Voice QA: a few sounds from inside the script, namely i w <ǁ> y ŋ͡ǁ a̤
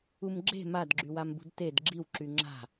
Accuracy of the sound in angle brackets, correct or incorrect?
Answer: correct